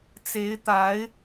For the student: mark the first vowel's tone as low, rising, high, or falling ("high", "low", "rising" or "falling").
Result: rising